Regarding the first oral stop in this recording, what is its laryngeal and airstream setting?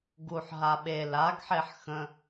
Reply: plain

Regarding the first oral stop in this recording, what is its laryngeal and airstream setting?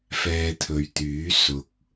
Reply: aspirated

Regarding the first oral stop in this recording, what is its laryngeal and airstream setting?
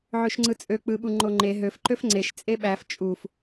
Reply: click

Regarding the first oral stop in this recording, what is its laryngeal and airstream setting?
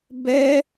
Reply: plain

